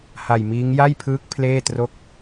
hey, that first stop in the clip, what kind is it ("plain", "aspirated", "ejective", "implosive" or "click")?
aspirated